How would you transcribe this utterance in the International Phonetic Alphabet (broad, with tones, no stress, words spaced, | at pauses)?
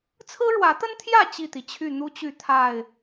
t͡sʰɹ̩˦ɻwä˨˦t̪ə˦nt̪ʰjä˥˨ t͡ɕi˥˨t̪i˩t͡ɕʰy˥˨ n̪u˦t͡ɕy˥˨ t̪ʰa˥˨ɪ̯